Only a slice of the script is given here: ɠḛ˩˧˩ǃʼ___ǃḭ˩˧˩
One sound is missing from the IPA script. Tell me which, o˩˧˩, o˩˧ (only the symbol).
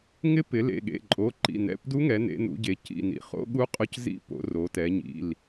o˩˧˩